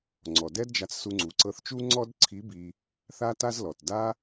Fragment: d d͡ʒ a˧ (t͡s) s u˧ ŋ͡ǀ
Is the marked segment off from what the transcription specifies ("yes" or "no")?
no